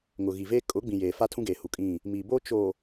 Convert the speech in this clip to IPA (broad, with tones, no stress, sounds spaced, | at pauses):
ŋ ʊ˨ ɣ i˨ v eː˦ kʼ ʊ˨˦ ɡ͡b ĩ˨ j eː˨ f a˦ tʰ ũ˦ ɡ eː˨ h u˨ kʼ ĩ˦˨ | m iː˨ b oː˦ t͡ʃ o˨